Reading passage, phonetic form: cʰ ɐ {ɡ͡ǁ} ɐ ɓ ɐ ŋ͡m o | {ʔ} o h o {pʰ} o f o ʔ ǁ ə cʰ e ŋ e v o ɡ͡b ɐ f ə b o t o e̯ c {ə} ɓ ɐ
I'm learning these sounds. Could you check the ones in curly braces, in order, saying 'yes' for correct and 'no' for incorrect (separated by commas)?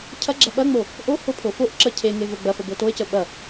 yes, yes, yes, yes